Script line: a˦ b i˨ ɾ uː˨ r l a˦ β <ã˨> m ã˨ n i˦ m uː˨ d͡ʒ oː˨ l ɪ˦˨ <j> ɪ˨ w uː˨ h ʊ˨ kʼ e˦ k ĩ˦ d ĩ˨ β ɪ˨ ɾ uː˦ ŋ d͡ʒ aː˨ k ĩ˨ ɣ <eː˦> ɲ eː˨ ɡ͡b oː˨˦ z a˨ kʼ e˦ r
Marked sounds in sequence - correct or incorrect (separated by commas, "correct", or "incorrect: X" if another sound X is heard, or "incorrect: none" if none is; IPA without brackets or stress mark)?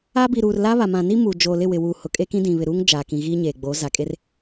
incorrect: a˨, incorrect: w, incorrect: iː˦